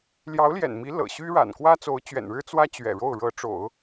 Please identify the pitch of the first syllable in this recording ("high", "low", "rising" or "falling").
rising